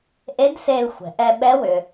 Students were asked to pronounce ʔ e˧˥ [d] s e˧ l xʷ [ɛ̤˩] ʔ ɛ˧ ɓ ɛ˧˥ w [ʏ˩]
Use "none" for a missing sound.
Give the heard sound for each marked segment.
d, ɛ̤˩, ʏ˩

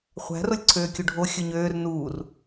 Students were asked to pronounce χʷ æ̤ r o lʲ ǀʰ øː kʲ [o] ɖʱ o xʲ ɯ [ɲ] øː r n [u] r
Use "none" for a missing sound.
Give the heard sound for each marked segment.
u, ɲ, uː

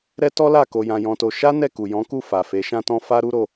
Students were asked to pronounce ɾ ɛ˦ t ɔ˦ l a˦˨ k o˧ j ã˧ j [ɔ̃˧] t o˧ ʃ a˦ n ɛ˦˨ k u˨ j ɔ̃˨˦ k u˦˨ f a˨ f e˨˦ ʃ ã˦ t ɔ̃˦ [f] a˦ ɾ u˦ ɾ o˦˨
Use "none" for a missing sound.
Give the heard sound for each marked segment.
ɔ̃˧, f

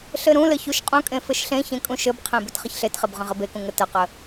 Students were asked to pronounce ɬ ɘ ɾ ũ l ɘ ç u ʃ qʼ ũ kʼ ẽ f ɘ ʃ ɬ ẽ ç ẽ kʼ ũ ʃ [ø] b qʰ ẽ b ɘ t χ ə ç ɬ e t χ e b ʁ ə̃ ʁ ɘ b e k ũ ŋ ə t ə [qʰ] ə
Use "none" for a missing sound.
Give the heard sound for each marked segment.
ɘ, q

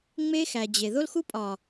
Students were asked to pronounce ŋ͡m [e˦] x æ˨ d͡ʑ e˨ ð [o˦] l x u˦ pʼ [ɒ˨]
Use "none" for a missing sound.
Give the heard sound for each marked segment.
e˦, o˦, ɒ˨

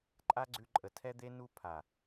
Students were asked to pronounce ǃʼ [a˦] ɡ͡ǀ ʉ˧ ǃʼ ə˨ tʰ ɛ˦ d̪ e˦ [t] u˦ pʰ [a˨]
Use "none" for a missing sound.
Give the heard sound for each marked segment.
a˦, n, a˨

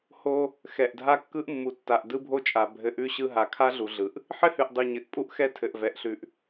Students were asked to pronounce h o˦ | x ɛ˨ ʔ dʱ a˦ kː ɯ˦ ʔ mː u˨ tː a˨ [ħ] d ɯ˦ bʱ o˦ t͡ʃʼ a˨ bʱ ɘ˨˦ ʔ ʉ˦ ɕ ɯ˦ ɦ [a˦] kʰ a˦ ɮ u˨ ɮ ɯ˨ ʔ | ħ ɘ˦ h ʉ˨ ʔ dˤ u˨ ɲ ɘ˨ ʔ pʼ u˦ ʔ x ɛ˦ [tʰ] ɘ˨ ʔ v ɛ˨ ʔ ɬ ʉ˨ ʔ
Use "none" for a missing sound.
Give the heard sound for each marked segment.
ʔ, a˨, tʰ

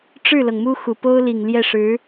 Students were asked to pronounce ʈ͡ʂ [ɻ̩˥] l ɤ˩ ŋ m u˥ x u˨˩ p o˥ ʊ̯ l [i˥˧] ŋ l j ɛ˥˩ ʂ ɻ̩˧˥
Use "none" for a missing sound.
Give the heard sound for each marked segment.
ɻ̩˥˩, i˨˩

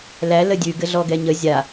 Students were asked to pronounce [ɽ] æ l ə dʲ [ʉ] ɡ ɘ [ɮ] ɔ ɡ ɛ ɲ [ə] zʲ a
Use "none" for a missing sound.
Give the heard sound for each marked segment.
l, ʉ, ɮ, ə

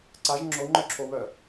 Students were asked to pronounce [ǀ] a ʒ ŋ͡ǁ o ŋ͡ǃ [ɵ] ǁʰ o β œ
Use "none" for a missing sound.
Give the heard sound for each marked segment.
ǀ, œ

